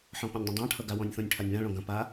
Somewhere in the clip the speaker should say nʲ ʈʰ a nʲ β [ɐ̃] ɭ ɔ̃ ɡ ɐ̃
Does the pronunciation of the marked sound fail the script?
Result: yes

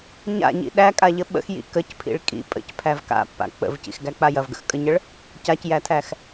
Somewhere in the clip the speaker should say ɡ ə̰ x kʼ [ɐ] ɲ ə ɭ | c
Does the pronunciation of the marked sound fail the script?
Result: yes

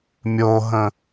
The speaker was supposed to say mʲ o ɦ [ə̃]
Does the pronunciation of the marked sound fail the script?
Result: no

